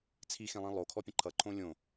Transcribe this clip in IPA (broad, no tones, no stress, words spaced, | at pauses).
t͡sʰixẽlˠĩ lˠokʰɔpʲə̃ ǃʰʌǃʰõ lʲõ